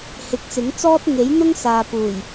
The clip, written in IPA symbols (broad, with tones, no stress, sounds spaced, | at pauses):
h ɪ˨˥ k̚ t͡s ɪ˨˥ ŋ t͡s ɔː˥ t̚ ŋ e˨˥ j n̪ ʊ˥ ŋ s aː˨ p uː˨˩ j